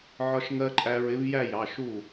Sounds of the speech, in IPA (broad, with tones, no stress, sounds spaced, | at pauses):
ʕ ɒ˧ ʃ ŋ ɜ˧ ǃʼ æ˧ ɹ ɪ˨˥ v j æ˥˧ j ɑ˩˧˩ ʃ u˥˩